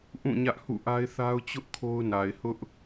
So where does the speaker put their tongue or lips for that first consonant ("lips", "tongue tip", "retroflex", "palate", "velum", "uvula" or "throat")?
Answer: throat